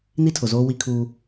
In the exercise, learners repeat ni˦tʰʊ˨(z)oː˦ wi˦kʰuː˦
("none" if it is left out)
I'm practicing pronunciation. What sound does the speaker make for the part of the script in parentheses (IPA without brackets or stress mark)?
z